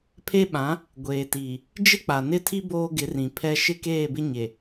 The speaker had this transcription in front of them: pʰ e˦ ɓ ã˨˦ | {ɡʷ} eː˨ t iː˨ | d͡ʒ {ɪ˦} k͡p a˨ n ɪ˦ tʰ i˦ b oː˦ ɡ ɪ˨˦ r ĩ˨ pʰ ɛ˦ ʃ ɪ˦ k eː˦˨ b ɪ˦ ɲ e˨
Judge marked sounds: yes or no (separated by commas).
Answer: yes, yes